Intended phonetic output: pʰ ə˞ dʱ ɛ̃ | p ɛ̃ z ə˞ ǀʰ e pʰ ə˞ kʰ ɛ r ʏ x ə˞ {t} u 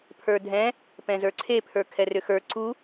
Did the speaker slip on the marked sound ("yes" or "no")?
yes